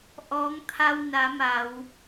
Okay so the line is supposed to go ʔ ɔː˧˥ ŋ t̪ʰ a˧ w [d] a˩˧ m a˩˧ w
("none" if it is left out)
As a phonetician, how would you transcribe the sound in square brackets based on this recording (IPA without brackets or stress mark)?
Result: n